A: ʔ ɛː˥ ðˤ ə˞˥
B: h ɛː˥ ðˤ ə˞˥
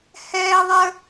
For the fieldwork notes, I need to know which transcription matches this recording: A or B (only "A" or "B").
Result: B